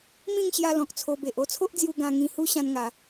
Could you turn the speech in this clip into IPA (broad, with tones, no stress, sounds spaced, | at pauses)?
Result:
m ĩ˥˧ ŋ ɕ j a˧ l ɔ̃˨ k̚ t͡sʰ o˧ b e˨ ʔ o˥˧ t͡sʰ o˦ ʔ d͡z j u˧ ɡ ã˧ ŋ ĩ˧ h u˦ ɕ ã˦ n ŋ a˧